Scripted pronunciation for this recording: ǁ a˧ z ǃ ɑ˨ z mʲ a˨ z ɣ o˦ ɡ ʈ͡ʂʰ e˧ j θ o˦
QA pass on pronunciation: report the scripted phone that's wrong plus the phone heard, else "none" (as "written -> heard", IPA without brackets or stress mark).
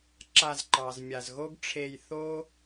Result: none